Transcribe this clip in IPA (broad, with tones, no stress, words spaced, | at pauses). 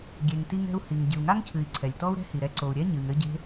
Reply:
ɡʲe˩ŋti˧ŋɛ̤˧u̯ hi˩ŋ ɟɨ˩u̯ŋa˥ŋcʰɨ˩i̯ ǀʰɛ˩lʲtɔ˥u̯ɾɛ̤˥hi˩ ɾɛ˧ǀo˩u̯ɾʲɛ˥ ɲɨ˩ŋ ɘ˧ɟe̤˧